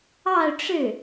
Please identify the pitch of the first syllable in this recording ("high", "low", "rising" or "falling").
falling